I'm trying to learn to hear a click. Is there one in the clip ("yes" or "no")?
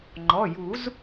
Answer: yes